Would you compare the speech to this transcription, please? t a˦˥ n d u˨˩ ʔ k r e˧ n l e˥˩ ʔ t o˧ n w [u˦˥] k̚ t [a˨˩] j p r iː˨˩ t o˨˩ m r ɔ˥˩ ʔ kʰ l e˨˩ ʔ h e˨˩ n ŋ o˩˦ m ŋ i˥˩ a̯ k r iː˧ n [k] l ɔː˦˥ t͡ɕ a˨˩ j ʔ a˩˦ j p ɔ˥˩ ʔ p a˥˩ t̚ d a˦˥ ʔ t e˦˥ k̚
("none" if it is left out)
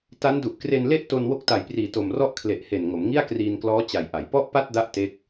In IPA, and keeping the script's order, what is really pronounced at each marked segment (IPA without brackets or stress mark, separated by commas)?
o˦˥, a˨˩, k